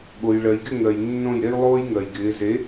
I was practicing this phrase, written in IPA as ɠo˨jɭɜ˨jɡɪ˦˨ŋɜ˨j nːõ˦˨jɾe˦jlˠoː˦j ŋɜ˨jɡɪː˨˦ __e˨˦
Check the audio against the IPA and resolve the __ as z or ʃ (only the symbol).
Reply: z